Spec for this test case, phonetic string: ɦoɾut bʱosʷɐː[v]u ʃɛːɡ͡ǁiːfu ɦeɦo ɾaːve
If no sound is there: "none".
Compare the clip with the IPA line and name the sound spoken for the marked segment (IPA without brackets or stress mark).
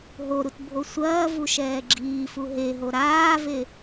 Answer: v